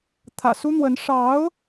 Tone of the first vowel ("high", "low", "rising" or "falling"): low